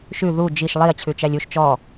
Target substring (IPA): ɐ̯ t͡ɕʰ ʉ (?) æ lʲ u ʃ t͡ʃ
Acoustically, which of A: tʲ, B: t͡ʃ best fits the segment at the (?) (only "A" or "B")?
B